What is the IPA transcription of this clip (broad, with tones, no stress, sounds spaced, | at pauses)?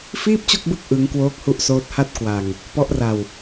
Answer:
f iː˥˩ p̚ t͡ɕ o˥˩ k̚ b ɯ˦˥ k̚ ʔ ɯ˦˥ ŋ k w oː˦˥ k̚ h u˦˥ ʔ s oː˦˥ t̚ h a˥˩ t̚ k w a˧ ŋ | p ɔ˦˥ ʔ r a˧ w